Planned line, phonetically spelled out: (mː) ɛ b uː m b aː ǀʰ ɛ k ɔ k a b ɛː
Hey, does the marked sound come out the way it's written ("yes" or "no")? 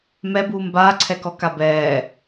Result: no